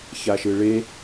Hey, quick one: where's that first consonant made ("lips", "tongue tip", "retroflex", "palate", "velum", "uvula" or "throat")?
palate